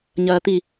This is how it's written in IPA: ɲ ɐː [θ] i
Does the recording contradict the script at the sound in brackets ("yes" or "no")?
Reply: yes